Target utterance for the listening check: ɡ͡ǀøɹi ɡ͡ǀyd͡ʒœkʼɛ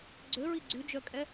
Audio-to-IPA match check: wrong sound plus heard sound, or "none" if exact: none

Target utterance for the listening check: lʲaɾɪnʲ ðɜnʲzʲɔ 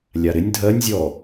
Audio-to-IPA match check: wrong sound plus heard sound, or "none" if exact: ð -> dʱ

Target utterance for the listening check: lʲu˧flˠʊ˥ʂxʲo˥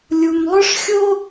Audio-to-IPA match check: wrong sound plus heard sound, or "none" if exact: f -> m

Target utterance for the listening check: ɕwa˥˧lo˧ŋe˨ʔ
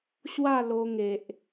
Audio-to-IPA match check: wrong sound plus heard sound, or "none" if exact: none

